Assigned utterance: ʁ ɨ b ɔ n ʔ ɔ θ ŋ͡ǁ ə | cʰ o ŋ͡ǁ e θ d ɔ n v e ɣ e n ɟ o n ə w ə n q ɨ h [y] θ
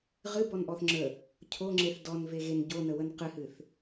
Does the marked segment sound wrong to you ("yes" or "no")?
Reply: yes